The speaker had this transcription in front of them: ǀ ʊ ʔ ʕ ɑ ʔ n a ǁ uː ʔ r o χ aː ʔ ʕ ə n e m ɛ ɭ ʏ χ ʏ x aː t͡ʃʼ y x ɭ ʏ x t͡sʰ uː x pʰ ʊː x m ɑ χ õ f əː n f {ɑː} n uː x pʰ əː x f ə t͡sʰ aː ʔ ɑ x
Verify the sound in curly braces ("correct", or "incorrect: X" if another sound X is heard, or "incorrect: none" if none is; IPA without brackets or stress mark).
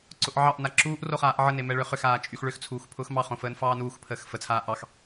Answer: correct